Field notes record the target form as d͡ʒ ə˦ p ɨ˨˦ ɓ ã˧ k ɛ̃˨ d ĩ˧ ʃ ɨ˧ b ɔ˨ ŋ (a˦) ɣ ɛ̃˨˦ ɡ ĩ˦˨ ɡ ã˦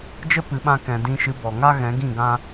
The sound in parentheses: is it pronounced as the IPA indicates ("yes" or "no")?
yes